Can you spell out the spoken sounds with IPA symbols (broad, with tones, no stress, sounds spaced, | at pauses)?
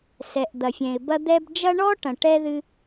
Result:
s ɛ˨ ʔ d̪ ɐ˨ fʲ ɛ̃˨ ɪ̯ b ɐ˦ d̪ ɛ˦ b d͡ʒ ɐ˥ ɳ ɔ˥ ʈ ɐ̃˨ ʈ ɛ˥ ð ɨ˦